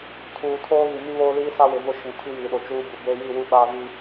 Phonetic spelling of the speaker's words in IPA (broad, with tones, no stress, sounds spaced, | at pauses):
tʰ uː˨ tʰ oː˦ ɣ i˨ m i˦ β oː˦ l iː˦ s a˦ w ɪ˨ v ʊ˦˨ ʃ ĩ˨ tʰ i˦ j iː˨ ɗ o˨ t͡ʃ uː˦ b u˨ b e˦ j i˦˨ w u˦ ɓ aː˦ v iː˦